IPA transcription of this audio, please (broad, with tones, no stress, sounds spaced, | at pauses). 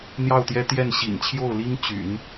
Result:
n̪ j ɑ˥˩ ʊ̯ t̪ j ɛ˥ t̪ j ɛ˥˩ n ɕ ḭ˨˩ n t͡ɕʰ j o˥˩ ʊ̯ l i˥ ŋ t͡ɕ y̰˨˩˦ n